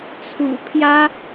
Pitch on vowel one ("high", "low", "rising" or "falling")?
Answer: low